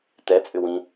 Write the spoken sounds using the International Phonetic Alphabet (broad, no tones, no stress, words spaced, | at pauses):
tɛt͡sʼʏ wĩ